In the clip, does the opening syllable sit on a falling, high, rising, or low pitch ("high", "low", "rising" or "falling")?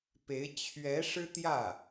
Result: rising